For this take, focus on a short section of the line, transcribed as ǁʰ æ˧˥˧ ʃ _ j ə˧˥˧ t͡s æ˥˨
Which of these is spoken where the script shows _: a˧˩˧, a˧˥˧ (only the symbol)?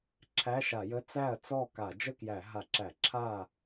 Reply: a˧˩˧